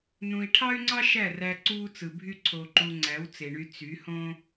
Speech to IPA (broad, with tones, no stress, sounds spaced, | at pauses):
n ũ˨ i̯ ʈʰ ɑ˦ y̯ ŋ͡ǀ ɑ˦ ʃ æ˦˨ r æ˧ ǀ uː˦ t͡s ɯ˨ bʱ y˦ ǀʰ o˧ ǃ u˧ ŋ͡ǀ æ˨˦ w t͡s e˨ ɳ y˧ t͡s y˨˦ h õ˦